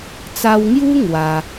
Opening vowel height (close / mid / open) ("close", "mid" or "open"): open